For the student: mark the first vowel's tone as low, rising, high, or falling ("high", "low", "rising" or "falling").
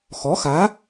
rising